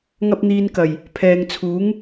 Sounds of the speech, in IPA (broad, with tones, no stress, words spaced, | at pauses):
ŋɐ˧p̚n̪iː˨nkɐ˨˩j | pʰɛː˨ŋt͡sʰuː˨˥ŋ